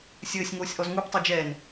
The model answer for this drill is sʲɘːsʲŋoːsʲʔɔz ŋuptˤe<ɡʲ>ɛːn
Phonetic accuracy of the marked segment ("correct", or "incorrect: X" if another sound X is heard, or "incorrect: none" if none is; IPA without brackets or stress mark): incorrect: d͡ʒ